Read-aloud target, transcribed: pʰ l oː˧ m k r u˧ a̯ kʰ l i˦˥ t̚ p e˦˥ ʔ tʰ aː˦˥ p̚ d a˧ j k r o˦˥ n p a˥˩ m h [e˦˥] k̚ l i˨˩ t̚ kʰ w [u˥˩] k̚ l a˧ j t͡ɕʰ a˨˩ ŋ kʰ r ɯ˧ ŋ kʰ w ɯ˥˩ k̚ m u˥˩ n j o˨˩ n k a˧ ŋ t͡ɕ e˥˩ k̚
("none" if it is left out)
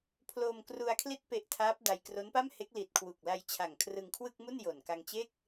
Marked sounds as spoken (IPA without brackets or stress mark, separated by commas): e˦˥, u˨˩